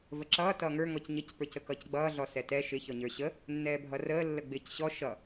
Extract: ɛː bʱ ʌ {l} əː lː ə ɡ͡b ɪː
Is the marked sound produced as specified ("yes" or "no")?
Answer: no